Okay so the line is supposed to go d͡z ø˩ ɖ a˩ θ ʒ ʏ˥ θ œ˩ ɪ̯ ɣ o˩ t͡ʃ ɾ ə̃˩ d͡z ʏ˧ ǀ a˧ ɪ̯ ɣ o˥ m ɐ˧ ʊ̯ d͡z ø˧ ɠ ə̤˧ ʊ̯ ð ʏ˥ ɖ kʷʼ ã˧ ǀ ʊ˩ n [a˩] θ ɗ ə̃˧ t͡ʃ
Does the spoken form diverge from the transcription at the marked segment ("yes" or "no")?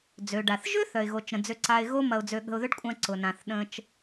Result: yes